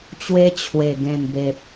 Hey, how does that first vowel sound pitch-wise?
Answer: high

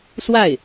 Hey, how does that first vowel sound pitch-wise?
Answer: falling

